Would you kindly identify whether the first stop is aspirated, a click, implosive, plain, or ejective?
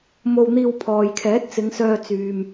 aspirated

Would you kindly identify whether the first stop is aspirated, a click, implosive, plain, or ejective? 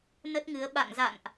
plain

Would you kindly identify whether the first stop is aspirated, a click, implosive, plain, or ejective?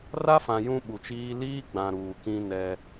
implosive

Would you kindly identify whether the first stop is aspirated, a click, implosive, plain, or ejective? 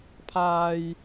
aspirated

